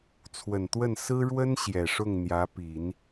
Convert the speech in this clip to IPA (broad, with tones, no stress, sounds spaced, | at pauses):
t͡sʰ w ə˨˩ n t̪ w ə˥˩ n s ɹ̩˥ ɻ w ə˥ n ɕ j ɛ˨˩ ʂ ʊ˥˩ ŋ n̪ j ä˧˥ p i˨˩˦ n